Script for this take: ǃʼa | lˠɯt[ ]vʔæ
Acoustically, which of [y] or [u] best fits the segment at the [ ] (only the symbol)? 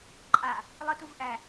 u